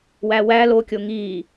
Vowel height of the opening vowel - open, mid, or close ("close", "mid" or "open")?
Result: open